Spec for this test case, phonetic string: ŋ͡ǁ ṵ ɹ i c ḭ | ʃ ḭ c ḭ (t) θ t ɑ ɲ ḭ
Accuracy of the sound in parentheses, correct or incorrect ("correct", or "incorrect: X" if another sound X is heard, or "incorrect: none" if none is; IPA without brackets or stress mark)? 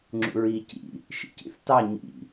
incorrect: none